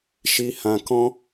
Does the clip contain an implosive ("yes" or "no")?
no